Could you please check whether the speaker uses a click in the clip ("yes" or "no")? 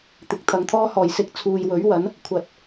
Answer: no